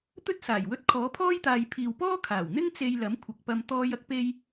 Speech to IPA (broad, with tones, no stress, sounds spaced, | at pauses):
t̪ ɵ˥ t̚ s aː˨˩ j w ɵ˧ t̚ kʰ ɔː˨˥ pʰ ɔː˥ j t̪ aː˨ j pʰ iː˨ w p ɔː˥ kʰ aː˨˩ w n̪ ɪ˥ ŋ t͡s e˧ j l ɐ˨˥ m kʷʰ ɐ˨ k̚ p ɐ˧ m t̪ ɔː˧ j ɐ˥ k̚ p e˧ j